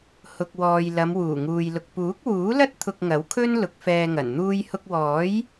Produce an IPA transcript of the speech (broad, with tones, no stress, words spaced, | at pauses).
hʊ˨k̚wɔː˨j lɐ˨˧mwuː˨˩ŋuː˨jlʊ˨k̚ puː˨˥k̚wuː˨˥lɐ˥t̚ t̪ʰʊ˧k̚ ŋɐ˨˥wkʰɵ˥n lʊ˨˥k̚fɛː˧ŋɐ˨˩n n̪uː˧jhʊ˧k̚wɔː˨˥j